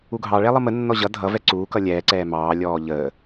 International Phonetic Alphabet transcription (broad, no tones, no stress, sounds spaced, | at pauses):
u ɡʱ ɑ ɭ ɛ lˠ ʌ m ə nː ɔ ʑ ʌ dʱ ʌ v ɛ ǀ uː k ʌ lʲ ɛː ǀ ɛː m ɑː lʲ ɔː ʎ əː